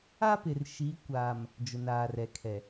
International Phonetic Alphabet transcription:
a˦ p ɪ˨ r ʃ i˨˦ kʷ aː˨ m | d͡ʒ ʊ˨ n aː˨ r ɛ˨ kʰ ɛ˨

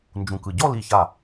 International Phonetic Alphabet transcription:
n d͡ʒ ũ˧˩ k ɯ˧˩ ɟ ɔ˥˧ l i˧˩ ç a˧˩

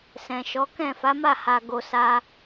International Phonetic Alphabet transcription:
s ɛ̃˨ ʃ ɔ˨˦ k ɛ̃˦˨ f a˨˦ m a˦˨ h a˨ ɡ o˨ s a˧

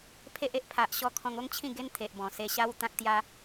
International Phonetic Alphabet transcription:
pʰ e˦ ʔ e˦ ʔ pʰ a˨ ʔ ɕ ɔ˧ kʰ ɔ̃˧ ŋ o˦ ŋ t͡ɕʰ ĩ˥˧ ɡ e˦ n t̪ʰ e˨ ʔ b ɔ̃˨˩ s e˧ ɕ a˦ w t̪ ã˦ k̚ t̪ j a˦

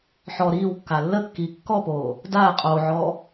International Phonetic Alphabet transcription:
ħ ɔ ɾ iː w kː a lː ə kː iː kː ɔ p oː | d aː qʼ oː ʕ ɔː

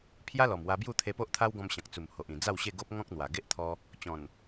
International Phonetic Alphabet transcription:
pʰ j a˦ l ɔ˨˩ m w a˧ b j u˥˧ t̪ʰ e˧ p o˦ ʔ t̪ʰ a˦ w ɡ ɔ̃˧ m ɕ ã˨ k̚ t͡s u˨˩ m h o˨ ʔ ĩ˨˩ d͡z a˥˧ w ɕ e˥˧ ɡ o˦ p̚ ŋ ɔ̃˦ k̚ n̪ w a˨˩ ɡ e˦ ʔ t̪ʰ ɔ˧ | t͡ɕ ɔ̃˨˩ n

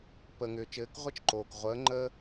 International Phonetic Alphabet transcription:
p əː˩ ŋ ʏː˩ t͡ʃ ɘː˩˧ k ʁʷ ɘ˧˥ t͡ʃ ǃ oː˩ k ʁʷ əː˩˧ ŋ͡ǃ əː˧

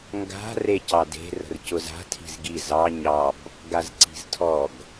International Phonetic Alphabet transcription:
ŋ ɡ a̤ r e c ɑ d e̤ r ə̤ r c ʊ z a̤ tʰ i̤ z ɡ i z ɑ ɲ ɑ b | ɡ a z ǀ i̤ z tʰ ɔ ɡ

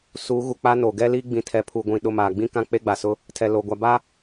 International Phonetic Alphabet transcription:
s uː˨˦ ɣ u˨ k͡p a˦ n o˨ ɡ ɛ˦ l iː˦ ɡ͡b ĩ˨ tʰ ɛ˨ pʰ u˨ ɡʷ ĩ˨ ɗ ʊ˦˨ m aː˨ ɡ͡b ĩ˦ k ã˦ k͡p e˦ ɡ͡b a˨ s ʊ˦ | tʰ ɛ˨ l o˨ ɡʷ a˨ b a˦

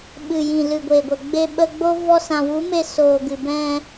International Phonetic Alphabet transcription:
ɓ ɨ˨ j ĩ˨ l ɨ˨ ɡʷ e˨ ɡʷ ə˨ ɡ͡b e˧ ɓ ə˧ ɡ͡b o˦ v ɔ˦ s ã˧ w u˨˦ m e˧ s oː˨ ɡ ɨ˨ b ɛ̃˧

